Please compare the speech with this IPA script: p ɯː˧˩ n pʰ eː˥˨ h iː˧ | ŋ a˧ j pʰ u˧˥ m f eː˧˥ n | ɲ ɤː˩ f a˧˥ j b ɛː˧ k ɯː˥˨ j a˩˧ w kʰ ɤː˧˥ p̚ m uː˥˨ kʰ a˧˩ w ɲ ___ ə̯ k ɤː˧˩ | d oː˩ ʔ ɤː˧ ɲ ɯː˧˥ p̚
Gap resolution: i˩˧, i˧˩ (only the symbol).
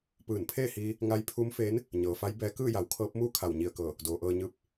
i˧˩